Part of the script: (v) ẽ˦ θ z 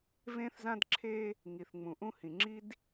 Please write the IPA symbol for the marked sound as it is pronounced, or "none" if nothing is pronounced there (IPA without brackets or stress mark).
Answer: v